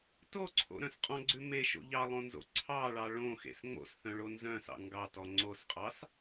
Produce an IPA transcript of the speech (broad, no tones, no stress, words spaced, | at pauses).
toǀʰo̰ɾœ̃s qʼɔ̃ɡ͡ǀʉ meʃo̰ ʎɑlˠõnzo̰ ǀʰɑɭɑ ɭõxḛs ŋ͡mo̰sθœ̃ɭo nzœ̃sɑ̰ ŋɡɑtɔ ŋ͡ǀosqʼɑs